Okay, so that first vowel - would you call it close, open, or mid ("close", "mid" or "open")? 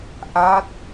open